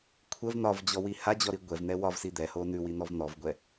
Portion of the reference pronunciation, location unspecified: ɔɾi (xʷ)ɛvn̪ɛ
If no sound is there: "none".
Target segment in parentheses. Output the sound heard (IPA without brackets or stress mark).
ɡʷ